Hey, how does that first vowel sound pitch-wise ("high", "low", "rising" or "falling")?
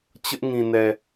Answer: high